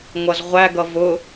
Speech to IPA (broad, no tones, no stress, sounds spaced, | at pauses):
ŋʷ ʌ z ʁʷ æ ɡ ʌ v ʊ